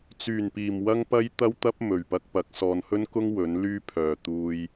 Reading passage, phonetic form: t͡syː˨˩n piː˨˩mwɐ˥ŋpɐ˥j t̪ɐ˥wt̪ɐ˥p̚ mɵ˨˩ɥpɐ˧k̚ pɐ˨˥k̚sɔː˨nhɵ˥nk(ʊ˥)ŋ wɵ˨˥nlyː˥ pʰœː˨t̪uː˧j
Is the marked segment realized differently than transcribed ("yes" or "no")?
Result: no